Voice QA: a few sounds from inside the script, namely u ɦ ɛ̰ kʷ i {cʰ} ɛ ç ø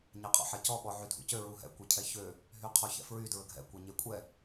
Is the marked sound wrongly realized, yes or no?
no